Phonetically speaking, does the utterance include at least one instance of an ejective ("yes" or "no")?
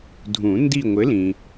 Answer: no